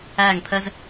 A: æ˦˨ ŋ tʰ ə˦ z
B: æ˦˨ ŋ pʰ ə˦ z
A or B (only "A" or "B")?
B